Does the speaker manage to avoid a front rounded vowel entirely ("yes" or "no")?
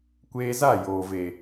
yes